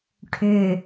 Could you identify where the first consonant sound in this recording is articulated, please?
retroflex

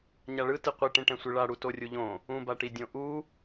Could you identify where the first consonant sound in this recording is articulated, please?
palatal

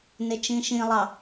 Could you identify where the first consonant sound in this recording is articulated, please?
alveolar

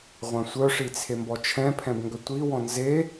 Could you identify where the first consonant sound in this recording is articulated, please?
uvular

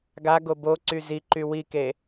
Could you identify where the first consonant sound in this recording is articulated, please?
velar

